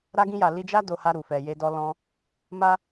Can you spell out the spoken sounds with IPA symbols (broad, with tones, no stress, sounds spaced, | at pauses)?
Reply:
ɾ a˧ ɡ ĩ˧ j a˨ l i˧ d͡ʒ a˦ d o˧ h a˧ ɾ u˨ f ɛ˨ j e˧ d ɔ˧ l ɔ̃˧ | m a˦